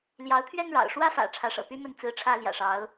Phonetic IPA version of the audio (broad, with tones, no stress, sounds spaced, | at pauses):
l j ɑ˧˥ ʊ̯ t̪ʰ ɥ ɛ˥ n ɻ ɑ̰˨˩ ʊ̯ ʂ w ä˥ f ä̰˨˩ ʈ͡ʂʰ ä˧˥ ʂ ɤ̰˨˩ p y˥ m ə˥˩ n t͡s ɹ̩˥ ʈ͡ʂʰ ä˥ l j ä̰˨˩ ʂ ɑ˧˥ ʊ̯